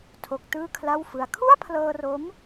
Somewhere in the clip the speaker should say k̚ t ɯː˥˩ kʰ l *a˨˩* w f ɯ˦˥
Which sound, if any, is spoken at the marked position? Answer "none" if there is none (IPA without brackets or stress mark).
a˥˩